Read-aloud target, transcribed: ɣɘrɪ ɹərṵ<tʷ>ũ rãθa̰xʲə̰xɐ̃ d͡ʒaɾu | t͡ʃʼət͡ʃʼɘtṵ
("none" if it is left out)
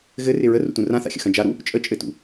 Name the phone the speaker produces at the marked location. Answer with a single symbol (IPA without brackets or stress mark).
t